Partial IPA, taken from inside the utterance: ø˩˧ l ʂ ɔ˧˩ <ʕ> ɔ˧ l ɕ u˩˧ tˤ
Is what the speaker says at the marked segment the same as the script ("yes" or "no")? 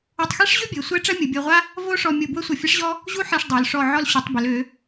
yes